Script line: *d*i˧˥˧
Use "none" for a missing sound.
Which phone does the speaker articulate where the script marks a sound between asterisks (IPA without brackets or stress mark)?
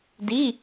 d